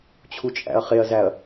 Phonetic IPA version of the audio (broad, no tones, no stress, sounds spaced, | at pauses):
t͡ɕʰ u t͡ʃʼ æ̰ ɐ̯ χ e ɐ̯ z æ ɐ̯